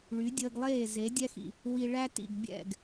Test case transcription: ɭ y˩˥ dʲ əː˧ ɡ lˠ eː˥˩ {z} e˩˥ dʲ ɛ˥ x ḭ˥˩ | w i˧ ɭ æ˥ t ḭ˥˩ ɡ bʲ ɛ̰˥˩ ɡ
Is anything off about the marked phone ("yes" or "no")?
no